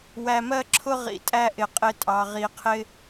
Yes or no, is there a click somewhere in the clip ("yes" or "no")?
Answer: yes